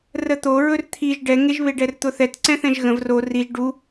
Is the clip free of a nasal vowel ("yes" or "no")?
no